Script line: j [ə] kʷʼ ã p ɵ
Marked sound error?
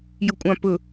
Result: no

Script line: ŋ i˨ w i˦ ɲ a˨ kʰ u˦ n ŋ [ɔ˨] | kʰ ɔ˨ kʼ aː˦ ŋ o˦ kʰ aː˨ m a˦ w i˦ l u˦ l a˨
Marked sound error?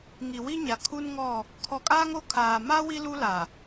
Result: yes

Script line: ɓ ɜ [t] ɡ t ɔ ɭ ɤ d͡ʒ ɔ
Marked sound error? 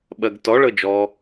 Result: yes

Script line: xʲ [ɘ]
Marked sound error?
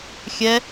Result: yes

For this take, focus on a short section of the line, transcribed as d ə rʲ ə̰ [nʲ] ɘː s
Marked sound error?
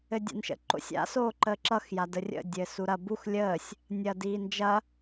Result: yes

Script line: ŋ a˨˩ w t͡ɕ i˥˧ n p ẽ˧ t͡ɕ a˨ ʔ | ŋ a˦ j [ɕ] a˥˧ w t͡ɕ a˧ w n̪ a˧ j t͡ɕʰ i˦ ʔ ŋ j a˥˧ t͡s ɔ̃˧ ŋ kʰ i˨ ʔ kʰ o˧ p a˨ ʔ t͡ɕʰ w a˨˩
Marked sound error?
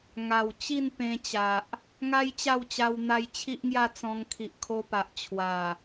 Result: yes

